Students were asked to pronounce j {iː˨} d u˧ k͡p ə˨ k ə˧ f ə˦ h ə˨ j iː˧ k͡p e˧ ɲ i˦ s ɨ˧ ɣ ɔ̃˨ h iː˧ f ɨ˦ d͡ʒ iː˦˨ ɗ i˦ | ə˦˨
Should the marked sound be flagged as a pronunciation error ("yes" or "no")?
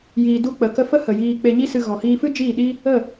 no